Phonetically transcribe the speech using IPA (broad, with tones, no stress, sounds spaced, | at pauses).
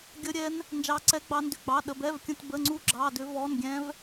ɡʲ ə˦˥ ɾʲ ɛ˦˥ n | n d͡ʒ ɑ˦˥ ǀ ɛ˦˥ ɡ͡b ɑ˦˥ n d ʏ˧˥˧ ɡ͡b ɑ˧˥˧ ɗ ə˧˥˧ b ɛ˧˥˧ v kʲ ə̃˧˥˧ t b ə˧˥˧ ŋ͡ǀ u˦˥ ɡ͡ǁ ɑ˧˥˧ d ʏ˦˥ v ɔ˧˥˧ n ɡʲ ɛ̃˦˥ v